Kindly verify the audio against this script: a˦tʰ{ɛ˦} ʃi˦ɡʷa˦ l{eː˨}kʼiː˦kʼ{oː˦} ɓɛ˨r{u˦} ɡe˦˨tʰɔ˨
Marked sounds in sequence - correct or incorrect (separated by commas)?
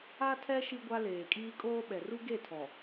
correct, correct, correct, correct